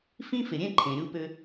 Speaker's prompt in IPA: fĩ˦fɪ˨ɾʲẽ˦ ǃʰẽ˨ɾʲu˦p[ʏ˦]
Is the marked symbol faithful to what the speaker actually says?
yes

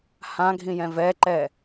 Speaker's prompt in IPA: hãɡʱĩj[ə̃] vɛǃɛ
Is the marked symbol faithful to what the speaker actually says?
no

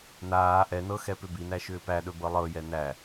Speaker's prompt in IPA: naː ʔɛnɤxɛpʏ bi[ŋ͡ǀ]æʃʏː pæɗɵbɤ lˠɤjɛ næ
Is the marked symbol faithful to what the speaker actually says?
no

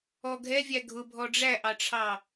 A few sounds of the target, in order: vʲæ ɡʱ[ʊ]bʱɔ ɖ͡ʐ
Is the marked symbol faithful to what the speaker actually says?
yes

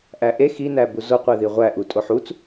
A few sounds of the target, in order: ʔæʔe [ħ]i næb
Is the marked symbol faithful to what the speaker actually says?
no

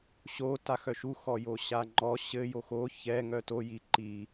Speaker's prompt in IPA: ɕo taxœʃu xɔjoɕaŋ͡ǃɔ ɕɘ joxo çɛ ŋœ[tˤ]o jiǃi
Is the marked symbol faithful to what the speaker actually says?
no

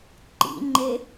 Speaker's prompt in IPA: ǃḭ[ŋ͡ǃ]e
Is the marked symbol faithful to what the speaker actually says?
yes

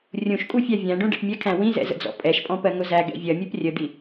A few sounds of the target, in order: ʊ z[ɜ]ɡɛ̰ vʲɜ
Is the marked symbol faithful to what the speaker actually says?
no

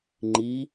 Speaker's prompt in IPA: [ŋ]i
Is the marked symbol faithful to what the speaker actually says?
no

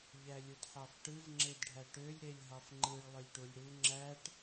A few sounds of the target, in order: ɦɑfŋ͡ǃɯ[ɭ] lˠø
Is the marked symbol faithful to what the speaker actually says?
yes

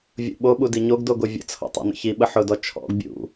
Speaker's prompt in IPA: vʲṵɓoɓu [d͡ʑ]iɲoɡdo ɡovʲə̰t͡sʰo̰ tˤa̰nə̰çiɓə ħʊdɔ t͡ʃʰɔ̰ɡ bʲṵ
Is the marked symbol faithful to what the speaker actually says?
no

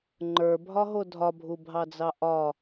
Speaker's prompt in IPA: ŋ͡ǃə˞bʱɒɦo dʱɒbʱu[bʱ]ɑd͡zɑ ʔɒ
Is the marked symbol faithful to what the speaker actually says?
yes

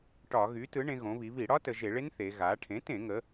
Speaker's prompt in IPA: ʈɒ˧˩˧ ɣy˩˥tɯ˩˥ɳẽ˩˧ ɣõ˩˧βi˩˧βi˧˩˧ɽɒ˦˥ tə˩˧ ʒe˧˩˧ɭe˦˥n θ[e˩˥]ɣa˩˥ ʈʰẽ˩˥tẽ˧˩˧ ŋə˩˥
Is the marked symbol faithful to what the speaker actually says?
no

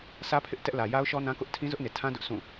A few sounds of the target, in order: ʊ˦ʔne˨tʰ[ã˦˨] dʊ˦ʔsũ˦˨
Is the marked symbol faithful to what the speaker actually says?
no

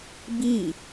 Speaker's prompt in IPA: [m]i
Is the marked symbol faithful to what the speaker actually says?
no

